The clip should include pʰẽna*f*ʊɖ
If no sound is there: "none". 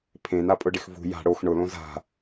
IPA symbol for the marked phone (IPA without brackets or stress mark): pʼ